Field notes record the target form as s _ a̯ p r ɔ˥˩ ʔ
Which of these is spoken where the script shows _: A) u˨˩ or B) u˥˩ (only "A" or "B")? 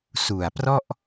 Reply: A